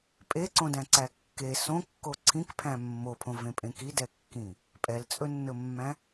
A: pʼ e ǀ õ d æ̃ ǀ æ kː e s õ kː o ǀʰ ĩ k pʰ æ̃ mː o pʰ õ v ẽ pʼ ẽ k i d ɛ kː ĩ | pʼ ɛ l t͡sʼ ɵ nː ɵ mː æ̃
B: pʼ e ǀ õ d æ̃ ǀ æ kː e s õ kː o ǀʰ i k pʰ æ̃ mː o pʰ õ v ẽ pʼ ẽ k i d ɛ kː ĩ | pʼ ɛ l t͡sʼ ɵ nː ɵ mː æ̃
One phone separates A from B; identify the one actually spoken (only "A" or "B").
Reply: A